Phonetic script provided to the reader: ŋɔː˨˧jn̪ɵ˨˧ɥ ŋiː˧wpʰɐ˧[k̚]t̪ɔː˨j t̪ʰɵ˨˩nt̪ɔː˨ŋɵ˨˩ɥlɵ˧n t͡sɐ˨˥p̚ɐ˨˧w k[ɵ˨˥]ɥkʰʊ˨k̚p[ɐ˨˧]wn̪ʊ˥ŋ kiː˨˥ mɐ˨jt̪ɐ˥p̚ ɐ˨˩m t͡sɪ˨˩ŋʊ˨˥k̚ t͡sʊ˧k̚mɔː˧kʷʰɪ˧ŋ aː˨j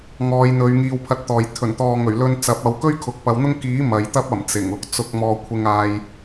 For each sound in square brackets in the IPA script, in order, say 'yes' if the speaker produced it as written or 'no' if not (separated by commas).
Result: no, no, yes